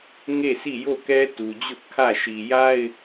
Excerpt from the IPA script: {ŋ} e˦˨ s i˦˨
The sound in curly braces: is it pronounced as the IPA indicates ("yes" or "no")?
yes